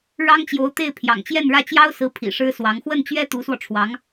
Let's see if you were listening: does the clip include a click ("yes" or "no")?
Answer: no